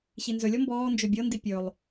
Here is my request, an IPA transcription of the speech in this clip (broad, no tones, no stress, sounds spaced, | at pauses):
ɕ i n z ɵ lʲ ɔ m b ɔː n d͡ʒ ø bʲ ɤ n d i pʲ ɵ lˠ